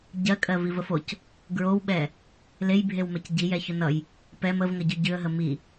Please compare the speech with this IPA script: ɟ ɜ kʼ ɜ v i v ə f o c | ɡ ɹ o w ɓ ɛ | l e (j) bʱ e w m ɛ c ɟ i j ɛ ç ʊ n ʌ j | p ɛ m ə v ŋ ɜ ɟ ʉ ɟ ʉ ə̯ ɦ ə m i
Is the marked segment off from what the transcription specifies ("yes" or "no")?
no